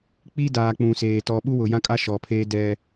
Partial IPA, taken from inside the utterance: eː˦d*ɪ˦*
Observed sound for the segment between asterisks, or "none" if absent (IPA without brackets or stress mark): ɛ˦